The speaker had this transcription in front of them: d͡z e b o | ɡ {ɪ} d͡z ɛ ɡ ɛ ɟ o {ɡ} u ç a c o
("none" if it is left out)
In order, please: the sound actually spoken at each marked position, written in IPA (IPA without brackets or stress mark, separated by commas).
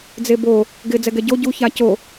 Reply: ɪ, ɟ